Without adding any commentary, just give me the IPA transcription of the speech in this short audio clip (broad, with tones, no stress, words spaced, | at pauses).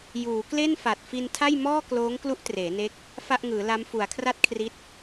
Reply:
juː˩˦kle˥˩nfa˨˩t̚ fi˧ntʰa˥˩jmɔː˥˩ kloː˦˥ŋklu˦˥ʔ treː˩˦ne˦˥k̚ | fa˥˩ʔŋɯː˩˦la˦˥m fu˩˦a̯kʰra˥˩t̚kʰri˦˥t̚